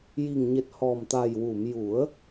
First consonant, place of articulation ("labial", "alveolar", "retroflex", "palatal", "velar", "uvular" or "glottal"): palatal